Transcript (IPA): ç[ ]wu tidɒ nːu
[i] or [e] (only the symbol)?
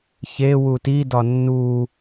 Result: e